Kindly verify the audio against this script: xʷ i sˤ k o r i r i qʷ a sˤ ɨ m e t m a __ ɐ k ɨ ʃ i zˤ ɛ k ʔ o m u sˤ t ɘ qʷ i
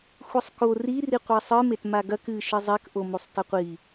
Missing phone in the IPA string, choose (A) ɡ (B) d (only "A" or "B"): A